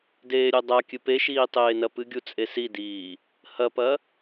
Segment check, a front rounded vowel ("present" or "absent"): absent